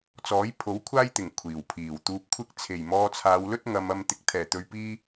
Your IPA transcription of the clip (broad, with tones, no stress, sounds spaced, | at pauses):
t͡s ɔː˨˥ j pʰ o˨˥ w kʷʰ aː˥ j t̪ ɪ˨˩ ŋ kʷʰ iː˨˩ w pʰ iː˨˩ w t̪ uː˨ p̚ kʷʰ ɪ˧ k̚ t͡sʰ e˨˩ j m ɔː˧ t͡sʰ aː˨˧ w l ɵ˥ t̚ ŋ ɐ˨ m ɐ˨ m t̪ ɪ˨ k̚ t̪ʰ ɛː˨˩ t̪ ɵ˨ ɥ p iː˧